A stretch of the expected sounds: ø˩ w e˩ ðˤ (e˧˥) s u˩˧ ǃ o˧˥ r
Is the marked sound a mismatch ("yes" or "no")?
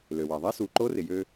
no